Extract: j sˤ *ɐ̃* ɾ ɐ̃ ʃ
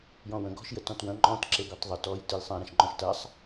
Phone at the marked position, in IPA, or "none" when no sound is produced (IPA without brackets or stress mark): ɐ̃